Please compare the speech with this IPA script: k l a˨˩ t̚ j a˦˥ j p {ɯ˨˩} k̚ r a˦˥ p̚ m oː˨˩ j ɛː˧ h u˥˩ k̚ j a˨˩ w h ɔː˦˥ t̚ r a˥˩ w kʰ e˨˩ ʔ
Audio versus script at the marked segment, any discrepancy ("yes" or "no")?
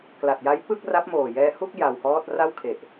yes